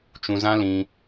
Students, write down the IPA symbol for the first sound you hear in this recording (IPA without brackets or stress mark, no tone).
t͡ʃ